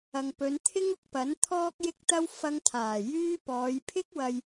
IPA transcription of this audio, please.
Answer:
ɐ˨ ŋ p ɵ˨˧ n t̪ʰ ɪ˥ ŋ ʊ˧ k̚ p ɐ˨˥ n t̪ʰ ɔː˧ k̚ j ɪ˧ k̚ t̪ ɐ˧ w f ɐ˧ ŋ t̪ʰ aː˨˩ j yː˥ p ɔː˨˧ j pʰ ɪ˥ k̚ w ɐ˧ j

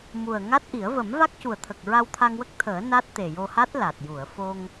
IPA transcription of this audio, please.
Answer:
m u˨˩ ə̯ ŋ a˦˥ t̚ ʔ i˨˩˦ ə̯ v ə˨˩˦ m v a˦˥ k̚ c u˨˩ ə̯ t̪ʰ ə˨˩ k̚ ɹ a˧ w t̪ʰ a˧ ŋ w ə˦˥ k̚ t̪ʰ əː˨˩˦ n a˦˥ t̚ t̪ e˨˩ j o˧ h a˦˥ t̚ l a˨˩ t̚ j u˨˩˨ ə̯ f o˧ ŋ

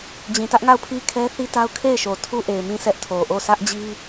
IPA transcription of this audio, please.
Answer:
d͡ʑ ĩ˨ t ä˦ ʔ ŋ a˦˨ ʊ̯ pʰ i˦ kʰ ɛ˦ θ i˦ t a˦ ʊ̯ kʰ e˦˨ ɪ̯ ʃ o˨ tʰ u˦ ʔ e˨ ɪ̯ m ĩ˦˨ s ɛ˦ ʔ tʰ o˨ ʔ o˦˨ s ä˦ ʔ d͡ʑ i˦

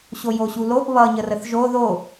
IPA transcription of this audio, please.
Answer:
ɕ o j o ɕ u l o ʔ β ʌ ɲ ə r ə θ ʒ o ð o

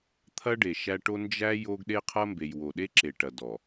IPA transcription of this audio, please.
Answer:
t̪ʰ ɐ˦ ɖ e˨ ʃ æ˦ ʈ o˦ n d͡ʒ æ˦ j o˦ ɡ ɗ e˦ qʰ ɐ˦ m b e˨ j w o˨ ɗ e˦ ǁ e˨ ʈ ɐ˨ d ɔ˨

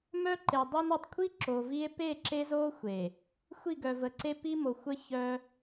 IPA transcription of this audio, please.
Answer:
m œ˦ ǃ e˨ dˤ i˦ n o˨ tˤ kʷʰ i˦ ǁ o˨ v i˦ e̯ p e˦˨ ǁ e˦ z o˦ xʷ e˨ | xʷ i˦˨ ɡ œ˨ v ə˨ ǀ e˦ p i˦ m o˨ xʷ ə˦ ç œ˦

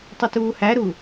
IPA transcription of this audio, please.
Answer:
tˤ ʏ t uː h æ ɾ u

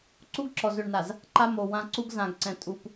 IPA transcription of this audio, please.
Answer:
ǀ u˦ ɡ ǁ ɔ˨ z ø˨ ɳ n a˨ z | ǃ a˦ m o˨ w ã˦ ǀ u˦ ɡ z ã˨ ɡ ǀ ɛ̃˨ tʼ u˨ p

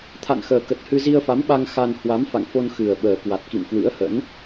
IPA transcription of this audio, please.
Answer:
t̪ʰ a̰˧˨ n x əː˨˩ k ə˨˩ t̚ h ɨ˧ z i˧ ə̯ f a˨˦ m ɓ a˧ ŋ x a˧ n h w a˨˦ m f a̰˧˨ ŋ f o˧ n x ɨ˨˩ ə̯ ɓ əː˨˩ k w a˨˩ t̚ k ḭ˧˨ m k w ɨ̰˧˥ ə̯ h ə̰˧˥ n

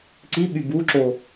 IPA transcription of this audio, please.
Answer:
ǀ i ɓ y b u ǁ o

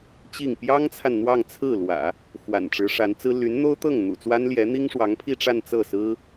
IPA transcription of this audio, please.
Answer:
t͡ɕ i˥˩ ŋ p j ɑ˥ ŋ t͡sʰ a˨ n n̪ w ɑ˥˧ ŋ t͡sʰ ɹ̩˥˩ l w ä̰˨˩˦ | x w a̰˨˩ n ʈ͡ʂ ɻ̩˧˥ ʂ a˧˥ n t͡s ɹ̩˥ l y˧˥ n n̪ o˥ ʊ̯ t̪ ɤ˥˩ ŋ n̪ ṵ˨˩ t͡s w a˥ n l j ɛ˧˥ n̪ i˥ ŋ ʂ w ɑ˧˥ ŋ pʰ i˥˧ ʈ͡ʂ a˥˧ n t͡s ɤ˥˩ s ɹ̩˥

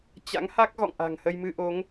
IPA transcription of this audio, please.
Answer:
t͡ɕ a̰˧˥ ŋ h a˦˥ k̚ ɣ ɔ̰˧˨ ŋ ʔ a̤˨˩ ŋ h ə˧ j m ɨ˧ ʔ o˨˦ ŋ

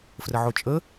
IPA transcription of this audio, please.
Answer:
f r ə ʕ o t͡ʃʼ ə

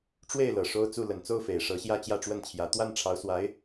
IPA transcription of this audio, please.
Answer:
ʈ͡ʂ w e˥˩ ɪ̯ l ɤ˨˩ ʂ o˥ ʊ̯ t͡s u˥˩ l ə˨˩ n t͡s o˥˩ ʊ̯ f e˨˩ ɪ̯ ʂ ɤ˧˥ ɕ j ä˥˧ t͡ɕ j ä˥˧ ʈ͡ʂ w ə˥˩ n t͡ɕʰ j ä˧˥ t̪ w a˥˩ n ʈ͡ʂʰ ɑ˧˥ ʊ̯ s w a˧˥ ɪ̯

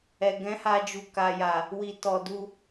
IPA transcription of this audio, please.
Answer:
ɛ˨ ɡ ɛ̃˨˦ h a˧ d͡ʒ u˨ k a˨ j a˨ | w i˨ t ɔ˨ d u˧

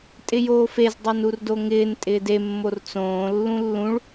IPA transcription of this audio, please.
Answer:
tʼ ɪ j oː f e z dˤ o n u r d o ŋ ɪː n tʼ ɪː d e mː o r t͡s õː lː ũ lː ũ ɭ

